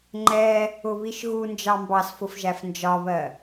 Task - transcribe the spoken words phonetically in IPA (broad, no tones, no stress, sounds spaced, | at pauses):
ŋ͡ǃ ɛ | ʊ β i ʃ ɣ u n d͡ʒ ɑ m b ɑ s f ʊ f ʒ æ f n d͡ʒ ɒ β ɜ